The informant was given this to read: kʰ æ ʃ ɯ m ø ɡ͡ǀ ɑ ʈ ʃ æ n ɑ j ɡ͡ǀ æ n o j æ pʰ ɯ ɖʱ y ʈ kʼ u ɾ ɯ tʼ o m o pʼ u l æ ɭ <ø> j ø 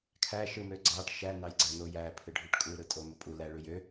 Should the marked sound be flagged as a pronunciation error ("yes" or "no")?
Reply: yes